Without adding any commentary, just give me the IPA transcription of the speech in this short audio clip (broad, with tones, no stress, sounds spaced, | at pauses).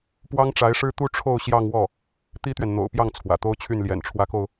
p w ɑ˥ ŋ ʈ͡ʂ a˧˥ ɪ̯ ʂ ɻ̩˥ t̪ u˥ ʈ͡ʂʰ o˥˧ ʊ̯ ɕ j ɑ˥˧ ŋ w ɔ˥˩ | t̪ i˥ t̪ ɥ ɛ˨ n n̪ o̰˨˩ ʊ̯ p j ɑ˥˩ ŋ t͡sʰ w ä̰˨˩ t̪ o˥ ʊ̯ t͡ɕʰ y˥˩ n l j ɛ̰˨˩ n ʈ͡ʂʰ w ä˧˥ k o˧ ʊ̯